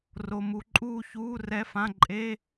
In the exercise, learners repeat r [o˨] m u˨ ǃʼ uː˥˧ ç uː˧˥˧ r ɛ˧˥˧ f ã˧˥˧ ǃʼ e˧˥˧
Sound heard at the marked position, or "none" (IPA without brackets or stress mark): o˨